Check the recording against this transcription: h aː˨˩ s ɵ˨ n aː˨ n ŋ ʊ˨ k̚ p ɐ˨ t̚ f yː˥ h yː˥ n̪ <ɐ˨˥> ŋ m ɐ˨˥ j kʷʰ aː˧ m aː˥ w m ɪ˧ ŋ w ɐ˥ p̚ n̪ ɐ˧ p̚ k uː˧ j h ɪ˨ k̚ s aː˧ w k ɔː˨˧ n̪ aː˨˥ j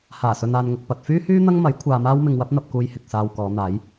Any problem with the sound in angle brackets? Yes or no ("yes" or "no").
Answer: yes